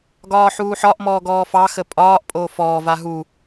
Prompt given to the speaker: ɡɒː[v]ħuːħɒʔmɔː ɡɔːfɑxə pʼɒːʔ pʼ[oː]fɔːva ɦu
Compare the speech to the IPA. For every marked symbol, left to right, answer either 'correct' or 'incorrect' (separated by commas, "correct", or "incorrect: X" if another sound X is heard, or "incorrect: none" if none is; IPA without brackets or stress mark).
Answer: incorrect: none, correct